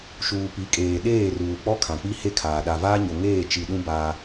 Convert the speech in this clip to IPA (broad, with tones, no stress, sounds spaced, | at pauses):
ʃ uː˨ p i˨˦ kʼ eː˨ ɗ eː˦˨ r uː˨ k͡p ɔ˦ kʰ ã˨ k͡p i˦ h e˦ kʰ aː˨ ɗ a˨ v aː˦ ɲ o˨ ŋ eː˦˨ t͡ʃ i˨ ɗ ũ˦ b a˦